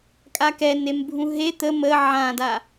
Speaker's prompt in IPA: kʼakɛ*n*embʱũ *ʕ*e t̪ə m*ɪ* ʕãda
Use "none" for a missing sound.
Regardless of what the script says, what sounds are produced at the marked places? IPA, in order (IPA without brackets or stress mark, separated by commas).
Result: n, ɦ, ə